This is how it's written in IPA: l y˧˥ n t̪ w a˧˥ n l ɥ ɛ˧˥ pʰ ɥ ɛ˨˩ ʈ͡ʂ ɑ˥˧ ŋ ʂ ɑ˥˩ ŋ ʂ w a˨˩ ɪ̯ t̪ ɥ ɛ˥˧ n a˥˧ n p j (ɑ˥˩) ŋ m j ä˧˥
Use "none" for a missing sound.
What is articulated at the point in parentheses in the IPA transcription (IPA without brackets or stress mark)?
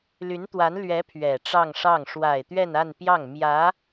ɑ˥˩